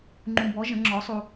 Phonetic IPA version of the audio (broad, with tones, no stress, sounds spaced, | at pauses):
ŋ͡ǃ ũ˨ b ɔ˩˥ ʒ ə̃˩˥ ŋ͡ǁ ɔ˩˥ sˤ u˨